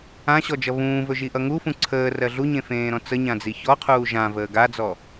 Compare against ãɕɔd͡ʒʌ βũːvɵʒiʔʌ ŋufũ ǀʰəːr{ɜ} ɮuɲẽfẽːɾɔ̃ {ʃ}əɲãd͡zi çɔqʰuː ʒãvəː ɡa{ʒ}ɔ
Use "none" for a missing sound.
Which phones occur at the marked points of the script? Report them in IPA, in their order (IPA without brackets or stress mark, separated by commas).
ɜ, t͡s, d͡z